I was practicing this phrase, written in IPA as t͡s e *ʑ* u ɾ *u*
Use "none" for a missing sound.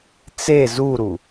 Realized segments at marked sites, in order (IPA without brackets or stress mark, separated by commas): z, u